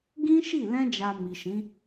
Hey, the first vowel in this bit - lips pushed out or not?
no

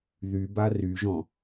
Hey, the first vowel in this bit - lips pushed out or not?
yes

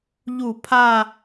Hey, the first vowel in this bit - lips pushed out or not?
yes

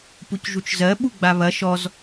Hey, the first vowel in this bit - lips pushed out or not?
yes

